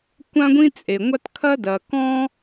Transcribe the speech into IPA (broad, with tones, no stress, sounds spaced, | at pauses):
kʷ ã˥ ɡʷ ĩ˥ t͡sʼ e˩ ŋʷ a˥ t kʰ ɐ˥ d ɐ˩ k ɔ̃˥